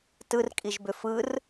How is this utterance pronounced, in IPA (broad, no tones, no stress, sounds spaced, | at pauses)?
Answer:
t ɯ r kʼ i ʒ b ʏ f ɯ r